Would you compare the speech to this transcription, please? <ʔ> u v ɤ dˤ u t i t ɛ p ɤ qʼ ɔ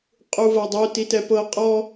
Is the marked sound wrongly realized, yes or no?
yes